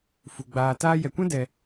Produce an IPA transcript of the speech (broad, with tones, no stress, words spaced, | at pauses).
fu˨ɡ͡baː˧ taː˧jɛ˨kʷɛ̃˦ dɛ˧